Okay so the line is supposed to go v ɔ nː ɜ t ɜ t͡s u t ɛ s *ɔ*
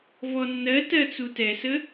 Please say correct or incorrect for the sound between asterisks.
incorrect